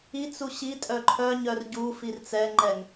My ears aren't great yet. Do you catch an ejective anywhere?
yes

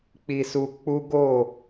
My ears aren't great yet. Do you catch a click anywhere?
no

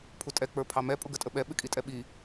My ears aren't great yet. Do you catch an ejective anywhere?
yes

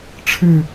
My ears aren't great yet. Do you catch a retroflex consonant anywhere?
yes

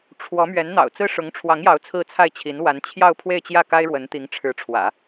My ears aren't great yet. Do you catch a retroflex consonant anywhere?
yes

